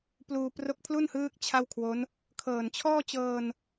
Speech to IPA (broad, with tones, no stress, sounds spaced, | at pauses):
p l uː˧ p r o˦˥ k̚ pʰ l u˥˩ n h ɯː˦˥ k̚ t͡ɕʰ a˥˩ w kʰ w o˦˥ n | kʰ ɤː˨˩ n t͡ɕʰ ɔː˥˩ t͡ɕ ɤː˧ n